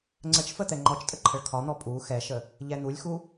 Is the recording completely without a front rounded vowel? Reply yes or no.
yes